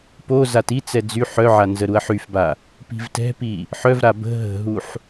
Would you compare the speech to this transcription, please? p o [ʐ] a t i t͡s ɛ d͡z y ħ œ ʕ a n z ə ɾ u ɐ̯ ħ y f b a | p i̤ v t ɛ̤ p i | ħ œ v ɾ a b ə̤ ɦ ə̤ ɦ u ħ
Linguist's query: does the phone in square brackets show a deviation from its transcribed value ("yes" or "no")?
yes